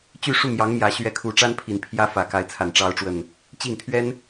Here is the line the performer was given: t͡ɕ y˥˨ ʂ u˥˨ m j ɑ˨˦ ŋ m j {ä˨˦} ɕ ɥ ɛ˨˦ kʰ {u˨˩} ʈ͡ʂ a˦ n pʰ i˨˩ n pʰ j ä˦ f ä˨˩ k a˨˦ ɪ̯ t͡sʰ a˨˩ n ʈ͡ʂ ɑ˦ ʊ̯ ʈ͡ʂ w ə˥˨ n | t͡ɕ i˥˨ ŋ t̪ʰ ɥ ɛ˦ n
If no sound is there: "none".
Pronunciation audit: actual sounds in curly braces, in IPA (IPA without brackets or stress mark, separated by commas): ä˨˦, u˨˩